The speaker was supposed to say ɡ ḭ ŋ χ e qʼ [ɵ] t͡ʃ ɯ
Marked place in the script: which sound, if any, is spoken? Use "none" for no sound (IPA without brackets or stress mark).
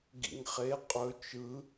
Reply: ɵ